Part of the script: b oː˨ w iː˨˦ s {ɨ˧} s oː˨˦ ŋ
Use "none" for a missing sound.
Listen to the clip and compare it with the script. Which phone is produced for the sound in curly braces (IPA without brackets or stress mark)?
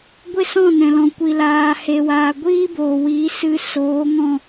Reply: ɨ˧